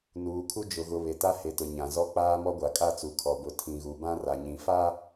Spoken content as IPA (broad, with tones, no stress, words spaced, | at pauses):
nuː˨kʰu˦d͡ʒʊ˨ɣʊ˨ βe˨ta˦ he˨tʊ˨ ɲã˨zɔ˦k͡paː˦ mɔ˦ɡʷa˨kʼa˦˨t͡su˨ kʰɔ˨bʊ˨ tʰĩ˨ɣu˨ bã˦ra˨ ɲĩ˨fa˦